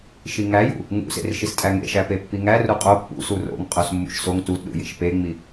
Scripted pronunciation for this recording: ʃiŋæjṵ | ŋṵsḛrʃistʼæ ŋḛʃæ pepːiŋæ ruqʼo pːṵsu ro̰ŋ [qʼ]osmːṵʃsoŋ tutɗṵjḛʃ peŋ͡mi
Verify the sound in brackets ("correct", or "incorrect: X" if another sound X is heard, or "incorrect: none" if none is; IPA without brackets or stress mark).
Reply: correct